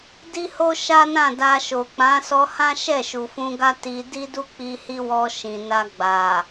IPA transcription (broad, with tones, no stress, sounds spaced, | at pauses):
d i˦ h o˦ ʃ a˦ n ã˦˨ d a˧ ʃ o˨ k͡p ã˨˦ s ɔ˧ h ã˦ ʃ ɛ˦˨ ʃ u˨ f ũ˧ ɡ a˦ t i˧ d i˦ d u˦ k͡p i˧ h i˦ w ɔ˧ ʃ ĩ˨ n a˧ ɡ͡b a˨